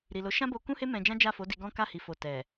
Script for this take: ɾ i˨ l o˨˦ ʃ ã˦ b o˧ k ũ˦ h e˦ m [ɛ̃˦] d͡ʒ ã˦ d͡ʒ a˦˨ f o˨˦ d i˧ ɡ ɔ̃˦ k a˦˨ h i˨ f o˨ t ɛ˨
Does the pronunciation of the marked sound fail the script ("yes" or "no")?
yes